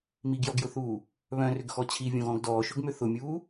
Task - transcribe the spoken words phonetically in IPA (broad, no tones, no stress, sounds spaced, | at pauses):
m i ɡ j ɔ ɡ j ʊ θ uː | β œ̃ r ʏ ɡ x ɔ t͡ɕʰ i vʲ õ ɣ ɔ̃ ɡ d ɔː ʃ ʊ ɡ m ʏ θ ʊ mʲ uː